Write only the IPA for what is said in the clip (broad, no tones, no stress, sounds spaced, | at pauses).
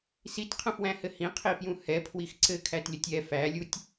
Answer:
s i t qʰ ə̃ f w æ̃ h ɘ h ĩ qʰ i f j ũ h ɛ pʰ w i x ǀ ɘ kʰ æ t lʲ ə tʲ ɛ f æ lʲ u tʲ